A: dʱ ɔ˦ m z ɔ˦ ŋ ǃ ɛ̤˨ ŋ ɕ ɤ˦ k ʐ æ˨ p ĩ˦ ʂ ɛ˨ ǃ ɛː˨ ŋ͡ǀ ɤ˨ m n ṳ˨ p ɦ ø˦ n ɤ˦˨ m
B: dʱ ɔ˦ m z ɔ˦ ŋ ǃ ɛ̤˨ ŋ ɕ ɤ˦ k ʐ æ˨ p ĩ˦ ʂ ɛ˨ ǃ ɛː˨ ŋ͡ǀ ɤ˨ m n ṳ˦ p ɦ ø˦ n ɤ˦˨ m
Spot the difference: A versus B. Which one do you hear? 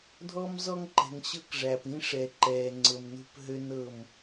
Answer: B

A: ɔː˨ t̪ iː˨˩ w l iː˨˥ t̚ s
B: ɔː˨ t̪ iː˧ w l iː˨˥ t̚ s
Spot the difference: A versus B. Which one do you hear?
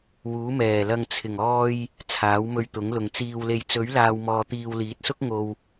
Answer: B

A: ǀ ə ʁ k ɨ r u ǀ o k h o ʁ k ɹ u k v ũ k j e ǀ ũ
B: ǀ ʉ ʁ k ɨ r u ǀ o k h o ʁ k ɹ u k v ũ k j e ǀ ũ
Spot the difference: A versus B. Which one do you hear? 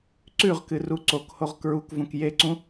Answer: B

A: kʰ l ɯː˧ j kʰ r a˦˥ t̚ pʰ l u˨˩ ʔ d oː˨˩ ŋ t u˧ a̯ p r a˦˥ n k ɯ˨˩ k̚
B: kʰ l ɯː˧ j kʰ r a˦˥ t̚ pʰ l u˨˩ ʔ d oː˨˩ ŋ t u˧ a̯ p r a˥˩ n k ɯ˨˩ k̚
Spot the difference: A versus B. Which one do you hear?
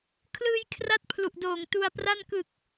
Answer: B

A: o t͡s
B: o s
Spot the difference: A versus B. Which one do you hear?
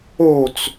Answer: A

